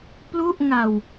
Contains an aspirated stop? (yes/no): no